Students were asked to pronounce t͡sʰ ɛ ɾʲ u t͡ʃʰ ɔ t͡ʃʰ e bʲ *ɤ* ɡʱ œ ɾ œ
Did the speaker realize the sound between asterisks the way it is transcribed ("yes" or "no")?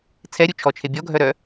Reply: no